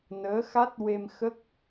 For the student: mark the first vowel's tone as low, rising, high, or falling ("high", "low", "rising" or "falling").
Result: rising